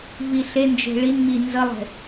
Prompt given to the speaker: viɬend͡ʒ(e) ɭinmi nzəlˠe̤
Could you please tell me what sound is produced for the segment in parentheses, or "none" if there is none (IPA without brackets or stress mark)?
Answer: e̤